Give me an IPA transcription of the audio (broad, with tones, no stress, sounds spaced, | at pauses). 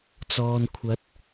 t͡s ɔː˨ n kʷʰ ɐ˨˥ t̚